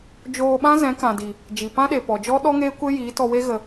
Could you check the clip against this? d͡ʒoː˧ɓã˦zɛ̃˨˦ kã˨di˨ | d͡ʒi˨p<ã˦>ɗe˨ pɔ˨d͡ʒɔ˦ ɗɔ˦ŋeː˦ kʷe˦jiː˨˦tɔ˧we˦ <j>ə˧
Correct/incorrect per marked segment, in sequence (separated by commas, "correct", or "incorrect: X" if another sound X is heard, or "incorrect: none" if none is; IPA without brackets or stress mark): correct, incorrect: ɣ